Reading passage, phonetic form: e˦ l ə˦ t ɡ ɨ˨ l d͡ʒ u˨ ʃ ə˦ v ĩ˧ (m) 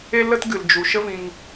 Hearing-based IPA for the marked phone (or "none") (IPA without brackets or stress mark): ŋ